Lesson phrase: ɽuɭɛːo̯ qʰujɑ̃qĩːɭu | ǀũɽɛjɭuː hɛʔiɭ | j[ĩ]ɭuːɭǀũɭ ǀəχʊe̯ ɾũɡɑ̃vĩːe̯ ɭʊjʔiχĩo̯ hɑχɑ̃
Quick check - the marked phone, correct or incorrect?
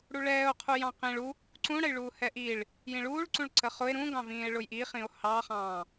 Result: correct